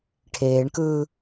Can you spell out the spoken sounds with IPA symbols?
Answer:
ʈʰ eː ɳ k ɯː

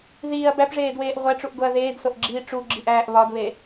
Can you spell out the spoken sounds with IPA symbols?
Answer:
ð iː ɐ̯ b æ p ʐ eː d w eː ʔ ʁʷ æ ʈ͡ʂ u ʔ ɡ o ɐ̯ ð eː d s o ʔ ɡ͡ǁ iː ʈ͡ʂ u ɡ͡ǁ i ʔ æː ʔ β ɒ d β e

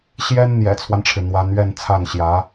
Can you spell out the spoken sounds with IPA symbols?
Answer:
ɕ j ɛ˥ n n̪ j ɛ̰˨˩ t͡sʰ w a˦ n ʈ͡ʂʰ ɻ̩˩ n̪ w a˧˥ n ɥ ɛ˥˧ n t͡sʰ a˥˩ n ɕ j ä˧˥

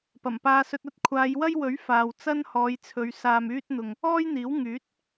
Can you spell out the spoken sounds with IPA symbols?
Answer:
p ɐ˨˩ m p aː˧ s ɵ˧ t̚ ɐ˥ t̚ kʷʰ aː˨˧ j w ɐ˥ j w ɵ˨˥ ɥ f aː˨ w t͡s ɐ˥ n h ɔː˨˧ j t͡sʰ ɵ˨˧ ɥ s aː˨ m yː˧ t̚ n̪ ʊ˨ ŋ | ɔː˥ j n̪ iː˨˥ w ŋ yː˨˥ t̚

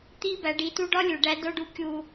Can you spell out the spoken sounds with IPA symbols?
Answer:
t̪ i˦ b æ˨˦ ɖ i˨˦ t u˦ ɖ ɒ˦ lʲ u˨ ɖ æ˦ d o˦ ɖ u˦ kʲ u˦

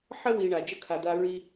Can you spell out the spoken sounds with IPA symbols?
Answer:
ħ ə˥ w i˨ ɳ a˩ d͡ʒ ə˥ kʰ a˨ d̪ a˦ ɹ i˥

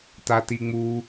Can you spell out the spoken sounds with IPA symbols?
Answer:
t a t i ŋ͡m u

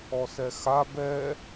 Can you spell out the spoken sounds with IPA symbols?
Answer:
ɔ s ɛ x a b ɛ

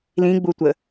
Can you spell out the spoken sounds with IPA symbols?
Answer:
l ĩ ɡ͡b u tʷ ə

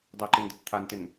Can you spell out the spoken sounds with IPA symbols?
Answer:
dˤ ɪ ǃ ɪ n d ə t t̪ʰ a n t ɪ n

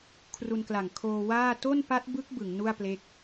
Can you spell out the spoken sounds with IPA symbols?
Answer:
kʰ r u˧ n k l a˨˩ ŋ kʰ oː˧ w aː˥˩ t o˥˩ n p a˦˥ t̚ b ɯ˦˥ k̚ b ɯ˩˦ ŋ n u˥˩ a̯ p l e˦˥ k̚

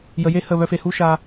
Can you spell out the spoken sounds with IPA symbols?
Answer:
j ə˨ j e˦˨ h ə˦˨ β œ˧ f e˨ h u˦ ʃ a˧

